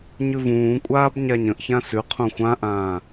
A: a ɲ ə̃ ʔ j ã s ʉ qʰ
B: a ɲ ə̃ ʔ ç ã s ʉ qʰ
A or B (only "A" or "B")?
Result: B